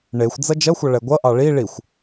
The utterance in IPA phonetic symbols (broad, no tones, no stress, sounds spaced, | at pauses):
ɳ e xʷ d͡z ʌ d͡ʒ ʌ xʷ ʌ ɭ ɛ ɡʷ ʌ ʔ ɑ ɭ i ɭ i xʷ